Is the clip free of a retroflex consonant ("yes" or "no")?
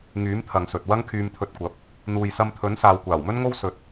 yes